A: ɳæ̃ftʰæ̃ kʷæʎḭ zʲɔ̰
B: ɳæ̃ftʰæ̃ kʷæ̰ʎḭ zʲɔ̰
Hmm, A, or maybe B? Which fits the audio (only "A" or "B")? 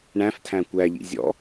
A